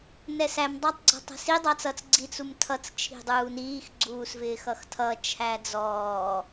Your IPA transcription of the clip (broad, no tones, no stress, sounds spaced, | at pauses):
n ɛ s æ m dˤ ɑ tˤ ɡ͡ǀ ɔ̤ tˤ æ̤ s i dˤ ɑ t͡s ʌ t͡s ɡ͡ǀ i t͡s u m tʰ ʌ t͡s t͡ʃʰ i̤ dˤ uː n iː x ɡ͡ǀ uː s v ɪː x ʌ x tʰ ʌ t͡ʃʰ æ d͡z ɔː